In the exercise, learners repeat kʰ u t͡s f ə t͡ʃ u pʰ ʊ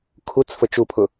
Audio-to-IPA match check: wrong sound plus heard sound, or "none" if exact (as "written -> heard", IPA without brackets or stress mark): none